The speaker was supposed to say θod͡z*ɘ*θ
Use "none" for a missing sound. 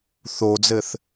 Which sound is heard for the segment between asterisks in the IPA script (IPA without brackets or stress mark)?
ɘ